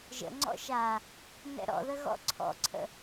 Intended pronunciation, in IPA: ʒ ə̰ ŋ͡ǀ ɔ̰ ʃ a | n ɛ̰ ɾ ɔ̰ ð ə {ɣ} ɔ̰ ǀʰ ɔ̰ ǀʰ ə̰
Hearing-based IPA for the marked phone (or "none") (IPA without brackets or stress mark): ɣ